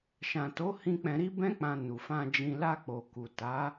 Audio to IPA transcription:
ʃã˨to˨˦hĩ˧ k͡pɛ̃˧ɾi˦bɛ̃˦k͡pã˧ nu˨fã˧d͡ʒĩ˧ la˧k͡po˨ ku˨ta˨˦

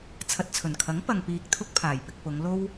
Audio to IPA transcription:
t͡sʰɐ˨t̚t͡sʰɵ˨˩nkʰɐ˨˥ŋ pɐ˨ŋ piː˧k̚t̪ʰʊ˥k̚pʰaː˨˩jpɪ˧k̚ pʊ˨˧ŋ lo˥w

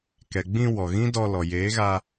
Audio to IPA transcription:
kɛ˨ɡ͡bĩ˧ wɔ˨ɣĩ˦ dɔ˧lɔ˨ jeː˨˦ɣa˧

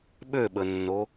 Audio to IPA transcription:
ɓøɓənːo

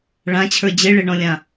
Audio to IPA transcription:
ɭãt͡ɕʰə˞ d͡ʑeɭeɳɔ̃lʲã

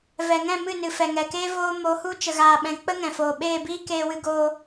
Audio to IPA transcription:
vɛ˨ŋɛ̃˦˨ mɨ˦˨nɨ˨ fɛ˨ŋɛ˨keː˦ voː˦ mo˨˦hu˦ t͡ʃə˨ɣaː˨ɓɛ̃˨ k͡pə˦ŋɛ̃˨foː˨ ɓeː˦˨biː˦ keː˧wɨ˧ɡoː˧

